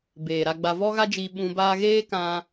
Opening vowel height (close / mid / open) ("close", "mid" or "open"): mid